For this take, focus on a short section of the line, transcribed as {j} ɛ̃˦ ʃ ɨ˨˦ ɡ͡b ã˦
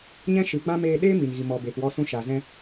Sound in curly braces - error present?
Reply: yes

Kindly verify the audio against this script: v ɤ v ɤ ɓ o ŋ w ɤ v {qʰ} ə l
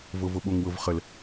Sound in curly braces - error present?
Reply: yes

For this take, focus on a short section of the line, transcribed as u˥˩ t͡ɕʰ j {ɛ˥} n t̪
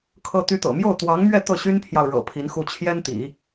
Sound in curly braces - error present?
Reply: no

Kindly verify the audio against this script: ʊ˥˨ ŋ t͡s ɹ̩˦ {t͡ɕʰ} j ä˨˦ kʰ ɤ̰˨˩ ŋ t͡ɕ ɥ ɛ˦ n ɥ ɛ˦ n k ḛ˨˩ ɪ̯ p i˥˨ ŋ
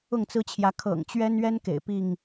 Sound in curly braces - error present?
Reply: no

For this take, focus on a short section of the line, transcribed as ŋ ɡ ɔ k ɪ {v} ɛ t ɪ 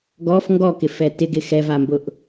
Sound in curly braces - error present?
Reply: yes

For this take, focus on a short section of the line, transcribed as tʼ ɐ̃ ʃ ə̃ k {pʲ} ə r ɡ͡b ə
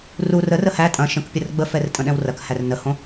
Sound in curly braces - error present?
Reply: no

